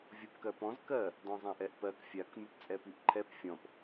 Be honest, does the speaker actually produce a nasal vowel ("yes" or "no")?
yes